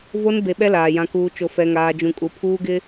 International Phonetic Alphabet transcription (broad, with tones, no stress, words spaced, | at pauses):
vo˦n be˨ɓɛ˦ laː˨jã˦kuː˦t͡ʃo˦ fɛ˦ŋaː˦ d͡ʒũ˨kʼu˨pʰuː˦ɡɪ˦